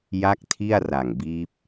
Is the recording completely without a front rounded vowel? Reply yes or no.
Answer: yes